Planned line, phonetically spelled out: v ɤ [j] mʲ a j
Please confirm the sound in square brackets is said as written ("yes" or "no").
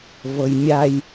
yes